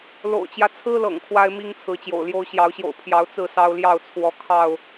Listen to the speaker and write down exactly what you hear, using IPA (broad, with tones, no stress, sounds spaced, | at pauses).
l o̰˨˩ ʊ̯ t͡ɕ j ä˦ t͡sʰ ɹ̩˦ l ɤ̰˨˩ ŋ kʰ w a˦ ɪ̯ m i˦ ŋ t͡sʰ ɹ̩˨˦ t͡ɕ j o̰˨˩ ʊ̯ l j o˦ ʊ̯ ɕ j ɑ˨˦ ʊ̯ ɕ j o̰˨˩ ʊ̯ pʰ j ɑ˨˦ ʊ̯ t͡s ɹ̩˥˨ s ɑ˦ ʊ̯ l j ɑ˥˨ ʊ̯ t͡sʰ w ɔ˨˦ kʰ ɑ˥˨ ʊ̯